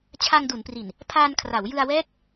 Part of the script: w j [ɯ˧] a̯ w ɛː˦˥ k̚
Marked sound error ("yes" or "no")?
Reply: no